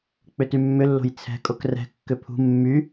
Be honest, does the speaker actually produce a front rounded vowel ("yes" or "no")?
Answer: yes